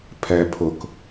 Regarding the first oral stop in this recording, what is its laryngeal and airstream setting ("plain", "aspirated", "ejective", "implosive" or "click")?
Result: aspirated